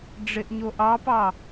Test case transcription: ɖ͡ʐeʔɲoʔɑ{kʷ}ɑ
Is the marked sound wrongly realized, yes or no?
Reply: yes